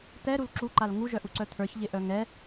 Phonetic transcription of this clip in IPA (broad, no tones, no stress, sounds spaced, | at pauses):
t̪ ɛ ɾ u l ǁ u ǃ a l ŋ u ʒ œ ʔ u ǀ œ t̪ʰ ə˞ ç ʎ ɪ ʔ œ ŋ ɛ